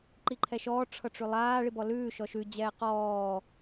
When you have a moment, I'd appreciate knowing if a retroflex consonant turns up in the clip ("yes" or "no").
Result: yes